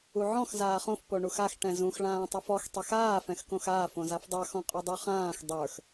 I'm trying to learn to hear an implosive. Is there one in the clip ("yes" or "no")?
no